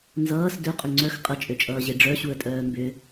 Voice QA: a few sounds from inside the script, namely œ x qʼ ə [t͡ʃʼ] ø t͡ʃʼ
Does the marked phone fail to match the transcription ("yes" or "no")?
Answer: no